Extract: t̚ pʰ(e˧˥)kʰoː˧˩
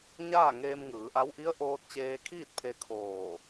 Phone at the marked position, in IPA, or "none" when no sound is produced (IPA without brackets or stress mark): e˧˥